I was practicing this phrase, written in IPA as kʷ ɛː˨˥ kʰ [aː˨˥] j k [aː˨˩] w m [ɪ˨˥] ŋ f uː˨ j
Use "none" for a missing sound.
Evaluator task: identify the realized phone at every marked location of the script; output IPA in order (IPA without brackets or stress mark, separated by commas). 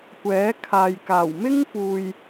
aː˨, aː˨˩, ɪ˥